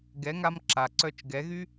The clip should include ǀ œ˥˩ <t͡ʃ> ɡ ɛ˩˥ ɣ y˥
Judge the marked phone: correct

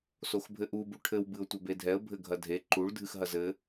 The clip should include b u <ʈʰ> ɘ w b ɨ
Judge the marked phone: correct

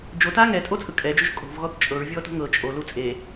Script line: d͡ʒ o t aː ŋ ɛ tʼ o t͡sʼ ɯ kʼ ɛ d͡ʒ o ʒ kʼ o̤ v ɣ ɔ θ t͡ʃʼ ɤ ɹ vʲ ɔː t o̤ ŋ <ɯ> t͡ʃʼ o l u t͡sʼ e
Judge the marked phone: incorrect: ɤ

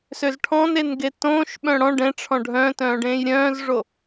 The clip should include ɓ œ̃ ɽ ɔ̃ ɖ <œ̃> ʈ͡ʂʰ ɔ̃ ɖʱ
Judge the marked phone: incorrect: ɛ̃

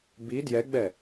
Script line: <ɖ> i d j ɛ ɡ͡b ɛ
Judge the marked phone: incorrect: b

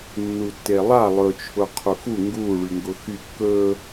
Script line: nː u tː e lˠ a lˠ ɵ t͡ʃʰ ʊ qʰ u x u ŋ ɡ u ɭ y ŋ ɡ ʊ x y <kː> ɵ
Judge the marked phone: correct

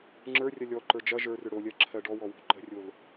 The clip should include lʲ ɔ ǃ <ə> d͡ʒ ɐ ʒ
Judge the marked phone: incorrect: ə˞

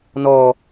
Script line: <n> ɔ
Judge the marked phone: correct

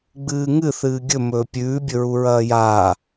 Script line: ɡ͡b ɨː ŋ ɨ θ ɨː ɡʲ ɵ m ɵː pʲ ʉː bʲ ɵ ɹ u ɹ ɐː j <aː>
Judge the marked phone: correct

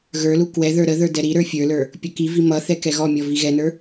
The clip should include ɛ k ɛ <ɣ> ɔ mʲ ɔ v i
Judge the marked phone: correct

